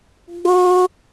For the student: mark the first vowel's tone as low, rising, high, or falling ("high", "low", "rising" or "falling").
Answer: high